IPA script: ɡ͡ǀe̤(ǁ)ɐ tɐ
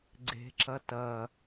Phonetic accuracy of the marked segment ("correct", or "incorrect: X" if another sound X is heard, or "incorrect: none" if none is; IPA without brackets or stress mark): correct